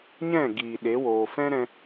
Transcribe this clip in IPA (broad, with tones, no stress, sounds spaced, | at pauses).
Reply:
ɲ ɛ̃˦˨ ɡ iː˨ ɗ e˨˦ w oː˨ f ɛ̃˦ ɾ ɛ̃˧